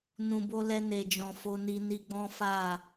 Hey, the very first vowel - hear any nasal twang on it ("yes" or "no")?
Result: yes